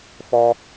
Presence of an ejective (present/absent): absent